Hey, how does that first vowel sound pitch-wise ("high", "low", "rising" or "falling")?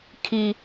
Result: high